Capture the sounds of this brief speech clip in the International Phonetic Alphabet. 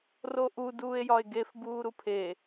r o ʔ u d uː e̯ j ɒ e̯ ɡ e f b uː ɾ u pʰ e

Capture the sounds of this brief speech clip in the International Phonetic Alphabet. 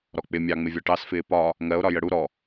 ɾ ɔ k͡p ɪ mʲ ɑ ŋ͡m ɪ vʲ ɒ ʈ ɑ s f ɪː p ɒ | ŋ ɜ o̯ ɾ ɒ j ə ɽ u ɾ ɔ

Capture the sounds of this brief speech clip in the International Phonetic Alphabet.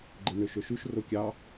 ɡ͡ǃ e n ø ʃ ø ʃ ʉ ʃ r o kʲ ɑ

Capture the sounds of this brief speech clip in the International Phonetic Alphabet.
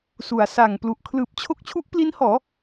s u˩˦ a̯ s a˨˩ ŋ p l u˨˩ ʔ kʰ l ɯː˨˩ p̚ t͡ɕʰ o˦˥ k̚ t͡ɕʰ u˦˥ ʔ p l i˦˥ n h ɔː˩˦

